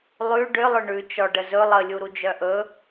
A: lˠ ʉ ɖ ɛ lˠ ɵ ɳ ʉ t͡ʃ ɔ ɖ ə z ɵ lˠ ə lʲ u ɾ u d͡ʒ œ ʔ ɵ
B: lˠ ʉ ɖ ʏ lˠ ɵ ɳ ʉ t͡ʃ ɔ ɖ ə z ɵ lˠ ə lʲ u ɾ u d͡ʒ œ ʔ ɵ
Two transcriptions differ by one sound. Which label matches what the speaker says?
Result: B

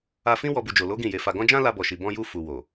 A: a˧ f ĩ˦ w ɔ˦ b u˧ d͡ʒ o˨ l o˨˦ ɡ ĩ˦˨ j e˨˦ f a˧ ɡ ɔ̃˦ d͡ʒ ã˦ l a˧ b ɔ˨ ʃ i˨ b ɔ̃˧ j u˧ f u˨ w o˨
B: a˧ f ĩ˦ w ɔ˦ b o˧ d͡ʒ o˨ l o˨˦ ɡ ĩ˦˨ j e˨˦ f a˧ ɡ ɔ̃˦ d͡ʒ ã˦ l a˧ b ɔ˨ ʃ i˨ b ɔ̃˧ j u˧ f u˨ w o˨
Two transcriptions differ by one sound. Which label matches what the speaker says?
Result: A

